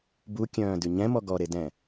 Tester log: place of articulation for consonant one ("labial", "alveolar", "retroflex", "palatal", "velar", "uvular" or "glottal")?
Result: labial